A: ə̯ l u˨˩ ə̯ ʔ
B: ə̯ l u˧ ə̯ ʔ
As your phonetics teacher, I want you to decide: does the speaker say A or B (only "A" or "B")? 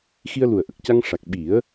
A